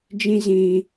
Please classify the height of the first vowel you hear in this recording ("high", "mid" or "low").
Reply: high